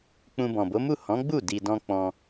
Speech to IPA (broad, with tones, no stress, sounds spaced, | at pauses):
k͡p ũ˧ b ɔ̃˨ b o˨˦ m u˦˨ h ɔ̃˨˦ ɡ͡b u˦˨ d i˧ d ɔ̃˦ k͡p ɔ̃˧